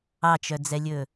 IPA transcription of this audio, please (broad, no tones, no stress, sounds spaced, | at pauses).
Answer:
ɑ t͡ʃ œ d͡z ɛ lʲ ɵ